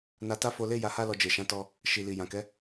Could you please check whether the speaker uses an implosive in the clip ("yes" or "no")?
no